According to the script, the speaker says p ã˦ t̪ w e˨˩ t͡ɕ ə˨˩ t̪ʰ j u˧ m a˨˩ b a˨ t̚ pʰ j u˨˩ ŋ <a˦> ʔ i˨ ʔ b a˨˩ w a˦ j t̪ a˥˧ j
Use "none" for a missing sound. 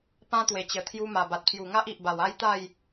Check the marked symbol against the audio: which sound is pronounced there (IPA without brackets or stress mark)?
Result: a˦